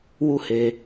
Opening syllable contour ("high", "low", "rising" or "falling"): high